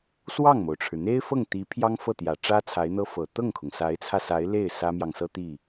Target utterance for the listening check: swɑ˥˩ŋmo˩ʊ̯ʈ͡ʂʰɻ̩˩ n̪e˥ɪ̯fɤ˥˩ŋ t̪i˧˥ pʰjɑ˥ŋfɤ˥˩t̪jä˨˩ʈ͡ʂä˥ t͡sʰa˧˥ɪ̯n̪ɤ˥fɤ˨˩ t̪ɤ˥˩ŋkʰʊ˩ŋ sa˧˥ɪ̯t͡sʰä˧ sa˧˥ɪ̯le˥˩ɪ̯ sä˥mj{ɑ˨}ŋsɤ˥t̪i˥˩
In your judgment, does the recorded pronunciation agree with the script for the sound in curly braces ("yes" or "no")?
yes